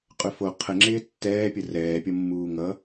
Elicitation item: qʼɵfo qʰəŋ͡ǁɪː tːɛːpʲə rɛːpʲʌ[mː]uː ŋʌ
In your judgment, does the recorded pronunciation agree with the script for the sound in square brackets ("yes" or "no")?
yes